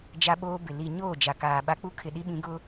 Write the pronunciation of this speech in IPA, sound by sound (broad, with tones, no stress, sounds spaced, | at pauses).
d͡ʒ a˦ ɓ oː˦ b ɪ˨ l i˨ ɲ oː˦˨ d͡ʒ a˨ k aː˨ ɓ a˦ k͡p u˦ kʰ ɪ˨ ɗ i˦ ɓ ĩ˨˦ ɡ ʊ˦